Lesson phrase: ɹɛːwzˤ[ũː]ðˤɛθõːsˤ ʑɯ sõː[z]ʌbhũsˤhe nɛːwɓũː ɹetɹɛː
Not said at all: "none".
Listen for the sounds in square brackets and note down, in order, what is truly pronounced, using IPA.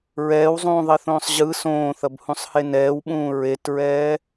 ũː, θ

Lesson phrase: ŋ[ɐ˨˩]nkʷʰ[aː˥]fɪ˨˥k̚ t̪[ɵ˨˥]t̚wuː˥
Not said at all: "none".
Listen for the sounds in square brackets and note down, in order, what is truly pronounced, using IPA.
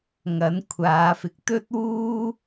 ɐ˨˥, aː˨˧, ɵ˥

